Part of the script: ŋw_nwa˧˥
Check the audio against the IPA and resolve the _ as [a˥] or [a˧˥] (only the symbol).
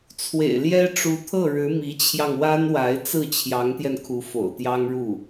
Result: a˥